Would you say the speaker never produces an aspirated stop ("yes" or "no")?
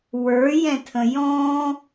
no